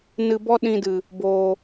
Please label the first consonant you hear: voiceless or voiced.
voiced